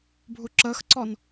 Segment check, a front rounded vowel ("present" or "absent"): absent